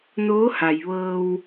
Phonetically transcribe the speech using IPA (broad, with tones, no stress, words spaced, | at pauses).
noː˧˥ha˩jʋɤː˧w